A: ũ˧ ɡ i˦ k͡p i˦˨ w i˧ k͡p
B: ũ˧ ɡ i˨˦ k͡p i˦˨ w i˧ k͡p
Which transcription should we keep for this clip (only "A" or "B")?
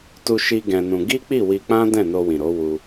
A